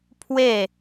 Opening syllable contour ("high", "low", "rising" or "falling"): falling